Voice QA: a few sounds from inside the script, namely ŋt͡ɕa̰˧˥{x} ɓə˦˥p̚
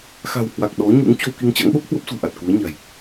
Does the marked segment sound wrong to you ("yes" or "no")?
yes